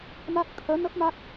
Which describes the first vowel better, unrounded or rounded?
unrounded